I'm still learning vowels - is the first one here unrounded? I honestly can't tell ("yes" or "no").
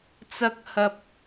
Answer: yes